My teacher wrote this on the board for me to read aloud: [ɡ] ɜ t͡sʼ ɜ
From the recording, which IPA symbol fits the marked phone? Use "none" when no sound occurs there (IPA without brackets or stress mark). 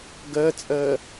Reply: ɡ